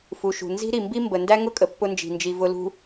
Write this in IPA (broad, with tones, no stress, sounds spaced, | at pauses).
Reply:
f u˨ ʃ ṳ˨ n z i̤˦ ɾ i˨ m b i˦ m b ə˨ n d æ˦ ŋ ʊ˦ kʼ ə˨ pː ʊ˦ n d͡ʒ i̤˨ n d͡ʒ i˨ v ʊ˨ l ṳ˨